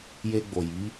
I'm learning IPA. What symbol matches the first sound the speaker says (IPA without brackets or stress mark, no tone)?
j